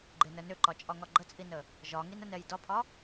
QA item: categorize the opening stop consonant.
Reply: click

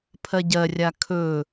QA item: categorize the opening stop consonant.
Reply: aspirated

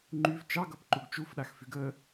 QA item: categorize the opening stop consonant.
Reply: click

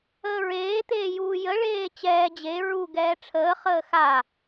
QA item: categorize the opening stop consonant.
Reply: plain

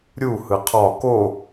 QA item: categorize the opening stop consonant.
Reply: aspirated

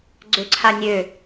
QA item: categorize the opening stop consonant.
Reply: click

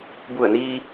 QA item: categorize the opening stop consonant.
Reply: plain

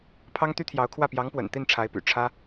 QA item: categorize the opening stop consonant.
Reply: aspirated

